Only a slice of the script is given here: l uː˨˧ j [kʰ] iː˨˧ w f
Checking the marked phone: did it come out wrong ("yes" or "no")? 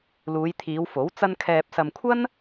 yes